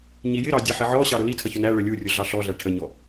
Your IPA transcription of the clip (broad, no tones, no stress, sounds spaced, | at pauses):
ɲ i j ɪ ɾ ɑ dʲ ɛ ħ ɪ ʕ ɔ ɕ ɑ ɾ ʊ l i tʰ ʌ ç ʊ n æ ɭ ə lʲ u rʲ ʊ ɮ ɑ ɬ ɔ ɮ æ ʈʰ ə ɲ ɔ